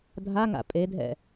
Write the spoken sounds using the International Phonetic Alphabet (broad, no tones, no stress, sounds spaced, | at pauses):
dʱ a ŋ a̰ pʼ e dʱ ɛ̰